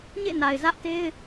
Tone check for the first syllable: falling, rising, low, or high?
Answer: falling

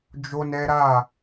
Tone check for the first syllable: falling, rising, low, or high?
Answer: high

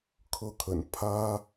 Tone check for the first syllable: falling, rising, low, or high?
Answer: falling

